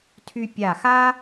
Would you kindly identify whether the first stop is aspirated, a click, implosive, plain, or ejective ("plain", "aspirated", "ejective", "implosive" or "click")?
aspirated